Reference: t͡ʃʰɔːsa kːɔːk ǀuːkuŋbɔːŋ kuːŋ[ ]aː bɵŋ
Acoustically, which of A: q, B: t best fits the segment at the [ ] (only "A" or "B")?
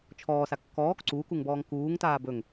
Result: B